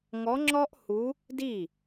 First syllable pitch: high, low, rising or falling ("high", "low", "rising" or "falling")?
rising